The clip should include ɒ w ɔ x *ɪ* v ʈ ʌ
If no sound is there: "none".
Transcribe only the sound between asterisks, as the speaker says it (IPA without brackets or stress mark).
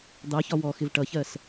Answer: ɪ